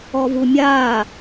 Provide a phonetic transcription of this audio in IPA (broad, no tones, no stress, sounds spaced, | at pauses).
ɔ v u mʲ aː